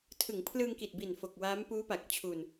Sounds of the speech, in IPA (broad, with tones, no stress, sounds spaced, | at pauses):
tʰ ɯ˩˦ ŋ pʰ l ɯː˧ ŋ k i˨˩ t̚ b i˨˩ n f o˨˩ k̚ w aː˦˥ m p uː˦˥ p a˨˩ k̚ t͡ɕʰ u˧ n